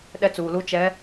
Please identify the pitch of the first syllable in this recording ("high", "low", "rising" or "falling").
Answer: high